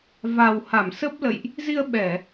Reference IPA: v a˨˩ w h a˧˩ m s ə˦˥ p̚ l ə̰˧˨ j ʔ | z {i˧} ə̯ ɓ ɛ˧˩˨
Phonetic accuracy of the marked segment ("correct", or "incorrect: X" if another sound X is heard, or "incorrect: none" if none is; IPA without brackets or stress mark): correct